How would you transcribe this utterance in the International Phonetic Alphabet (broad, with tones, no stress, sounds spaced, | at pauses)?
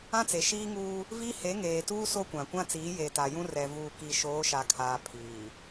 ã˦ t͡s e˨ ʃ iː˦ ŋ uː˦ | v i˦ h e˨˦ ŋ eː˨ t uː˦ s o˦ kʷ ã˨ kʷ ã˦ t͡s iː˨˦ j e˨ t a˨ j ũ˦ r ɛ˨ v uː˨ k i˨ ʃ oː˨˦ ʃ a˨ kʰ aː˨ pʰ iː˨